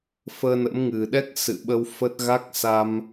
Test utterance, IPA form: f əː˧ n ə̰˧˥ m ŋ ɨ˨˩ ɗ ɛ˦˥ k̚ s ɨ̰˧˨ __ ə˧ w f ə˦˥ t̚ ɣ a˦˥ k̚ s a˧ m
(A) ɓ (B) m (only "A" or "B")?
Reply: A